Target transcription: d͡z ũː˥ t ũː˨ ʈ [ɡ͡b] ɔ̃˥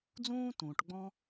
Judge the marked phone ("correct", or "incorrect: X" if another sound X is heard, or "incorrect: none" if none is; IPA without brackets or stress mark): correct